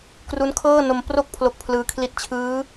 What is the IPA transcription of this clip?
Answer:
k r u˦˥ n kʰ ɤː˥˩ n o˧ m p r o˥˩ k̚ pʰ l o˥˩ k̚ pʰ l ɯː˧ kʰ l i˥˩ t̚ t͡ɕʰ ɯː˦˥

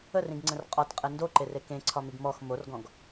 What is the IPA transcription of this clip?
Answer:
ə r ĩ ɡ ŋ͡ǀ ə̃ r qʼ ɒ t qʼ ɛ n d o ǃ e r e k ẽ ǀʰ ɒ m i ɡ m ɔ x m o r ɡ ɔ̃ ɡ

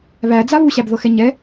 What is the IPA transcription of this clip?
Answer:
β æ d͡z a β u ɕ æ b ð ɤ x ɛ ɲ ɛ

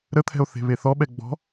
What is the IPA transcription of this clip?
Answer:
ɾ ə t̪ʰ ɛ̤ o̯ θ e̤ β e θ ɔ ɓ ɛ ɡ͡b ɔ̤

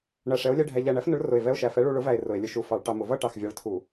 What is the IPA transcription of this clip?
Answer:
ɳ æ˧˩ ʂ ɛ˨˥ o̯ lʲ ɛ˧˥˧ ɖʱ æ˧ ʎ æ˧˩ ɳ æ˨˥ f n ʊ˨˥ ɭ r ʊ˧˩ e̯ v ɛ˧˥˧ o̯ ʃ æ˧˩ f ɛ˨˥ ɭ u˧ ɭ ʊ˨˥ v æ˧˩ e̯ r ʊ˧˩˧ e̯ lʲ ʊ˧˩ ʃ u˧˩ f ɑ˧˩˧ ɭ ʈ ɑ˧ m ʊ˧˩˧ v ʌ˥˧ ʈ ɑ˧˩ x vʲ ɑ˨˥ ɭ tʰ u˧˩˧

